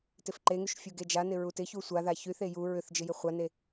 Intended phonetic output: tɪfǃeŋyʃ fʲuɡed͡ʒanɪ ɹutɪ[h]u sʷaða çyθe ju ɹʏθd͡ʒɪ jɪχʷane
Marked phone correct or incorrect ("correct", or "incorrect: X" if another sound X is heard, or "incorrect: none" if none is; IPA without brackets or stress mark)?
incorrect: ç